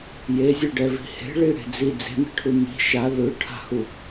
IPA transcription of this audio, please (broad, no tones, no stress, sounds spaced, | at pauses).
j e zʲ ɛ ɖ ɛ v i̤ h e̤ ɭ i ɽ e̤ d͡z i d͡z e̤ m e̤ ʈʰ u m i̤ ʃ a ð ɯ ʈʰ a̤ h u